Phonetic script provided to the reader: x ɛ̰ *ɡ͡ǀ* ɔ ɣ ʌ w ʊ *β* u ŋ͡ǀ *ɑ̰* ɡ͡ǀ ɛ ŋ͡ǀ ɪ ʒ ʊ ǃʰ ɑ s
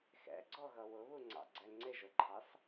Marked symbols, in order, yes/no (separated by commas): yes, yes, yes